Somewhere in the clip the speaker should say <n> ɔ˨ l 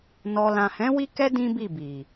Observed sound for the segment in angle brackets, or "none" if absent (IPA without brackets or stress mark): n